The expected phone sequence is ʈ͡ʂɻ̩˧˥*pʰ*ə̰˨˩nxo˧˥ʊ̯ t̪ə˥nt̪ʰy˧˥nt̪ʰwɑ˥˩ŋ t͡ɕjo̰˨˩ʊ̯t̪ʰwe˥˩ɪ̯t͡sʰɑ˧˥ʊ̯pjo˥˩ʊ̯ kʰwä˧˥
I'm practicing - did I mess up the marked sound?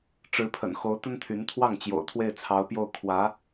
no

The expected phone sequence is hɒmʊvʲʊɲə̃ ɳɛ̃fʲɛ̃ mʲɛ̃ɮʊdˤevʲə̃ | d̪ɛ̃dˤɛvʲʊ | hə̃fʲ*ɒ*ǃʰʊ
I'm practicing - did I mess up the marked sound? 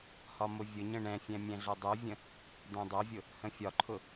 no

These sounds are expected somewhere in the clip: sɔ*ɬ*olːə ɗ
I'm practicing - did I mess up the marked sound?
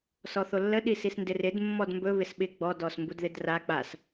yes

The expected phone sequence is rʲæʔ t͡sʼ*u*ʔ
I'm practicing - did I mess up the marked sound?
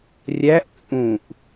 yes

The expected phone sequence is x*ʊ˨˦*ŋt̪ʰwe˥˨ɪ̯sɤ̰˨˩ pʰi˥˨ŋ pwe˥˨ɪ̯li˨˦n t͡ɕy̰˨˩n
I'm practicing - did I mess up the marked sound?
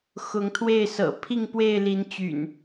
no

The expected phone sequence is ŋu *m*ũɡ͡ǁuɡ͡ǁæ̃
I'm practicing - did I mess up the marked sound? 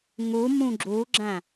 no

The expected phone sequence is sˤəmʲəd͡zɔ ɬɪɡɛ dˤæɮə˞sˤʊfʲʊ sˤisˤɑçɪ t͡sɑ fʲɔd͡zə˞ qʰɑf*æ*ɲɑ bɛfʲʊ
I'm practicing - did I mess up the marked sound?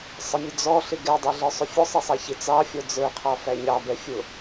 no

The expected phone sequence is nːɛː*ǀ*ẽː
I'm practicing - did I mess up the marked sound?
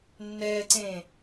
no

